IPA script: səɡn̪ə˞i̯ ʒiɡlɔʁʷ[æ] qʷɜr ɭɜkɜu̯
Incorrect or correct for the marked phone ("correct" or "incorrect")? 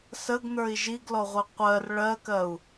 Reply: incorrect